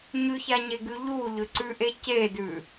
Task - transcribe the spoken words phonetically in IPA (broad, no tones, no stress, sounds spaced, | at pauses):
ɲ ʉ ç a ɲ e ɡ ʉ ʎ u ʎ ʏ ǀ ʉ ʔ e c e d ʉ